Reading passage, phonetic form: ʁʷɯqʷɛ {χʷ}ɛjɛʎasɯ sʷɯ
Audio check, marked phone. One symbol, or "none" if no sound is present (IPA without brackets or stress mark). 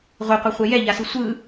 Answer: χʷ